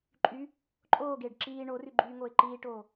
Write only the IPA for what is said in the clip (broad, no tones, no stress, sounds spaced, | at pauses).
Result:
ǃʼ y | ǃʼ oː ɡ eː ɖ ǁ iː ɳ o r y ɡ͡ǃ yː ŋ oː ɪ̯ ǃ iː ʈ oː